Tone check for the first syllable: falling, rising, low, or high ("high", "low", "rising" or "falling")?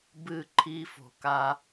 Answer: falling